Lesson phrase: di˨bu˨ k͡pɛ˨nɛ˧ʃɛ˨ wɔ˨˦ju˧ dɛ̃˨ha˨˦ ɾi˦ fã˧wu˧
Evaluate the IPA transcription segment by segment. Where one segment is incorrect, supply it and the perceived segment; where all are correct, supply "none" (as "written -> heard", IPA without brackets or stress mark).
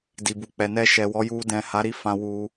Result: none